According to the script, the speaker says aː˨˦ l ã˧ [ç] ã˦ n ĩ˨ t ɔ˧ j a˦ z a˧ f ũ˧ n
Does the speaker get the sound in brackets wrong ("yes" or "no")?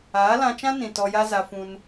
yes